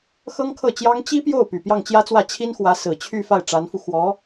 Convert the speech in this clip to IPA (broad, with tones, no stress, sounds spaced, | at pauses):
x ɤ˥ ŋ kʰ ɤ˥˩ t͡ɕ j ɑ˥ ŋ t͡ɕ i˥ p j o˥˩ ʊ̯ p y˨˩ p j ɑ˥˩ ŋ t͡ɕ j ä˥ t͡s w ä˥˩ t͡ɕʰ i˥ n x w ä˧˥ s ɹ̩˨˩ t͡ɕʰ y˥˧ f a˥˩ ɪ̯ ʈ͡ʂ a˧˥ n f u˧ x w ɔ˧˥